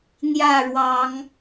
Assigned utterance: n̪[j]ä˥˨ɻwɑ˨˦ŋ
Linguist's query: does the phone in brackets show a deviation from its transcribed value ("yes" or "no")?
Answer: no